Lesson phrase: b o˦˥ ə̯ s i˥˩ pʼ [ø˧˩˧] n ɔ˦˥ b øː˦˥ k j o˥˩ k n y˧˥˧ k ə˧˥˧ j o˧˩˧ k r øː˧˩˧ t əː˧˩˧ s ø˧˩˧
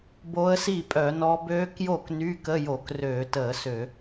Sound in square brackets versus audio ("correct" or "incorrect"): incorrect